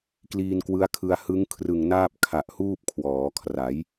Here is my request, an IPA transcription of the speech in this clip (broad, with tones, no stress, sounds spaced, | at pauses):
k l iː˧ n k w ɯ˦˥ a̯ kʰ ɯ˧ a̯ h ɯ˦˥ ŋ kʰ r ɯ˨˩ ŋ n aː˥˩ p̚ kʰ a˨˩ ʔ h uː˥˩ p̚ kʰ w ɔː˩˦ kʰ r a˩˦ j